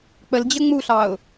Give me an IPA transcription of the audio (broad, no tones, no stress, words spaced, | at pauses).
k͡pəld͡ʑə ŋ͡muɬɑʊ̯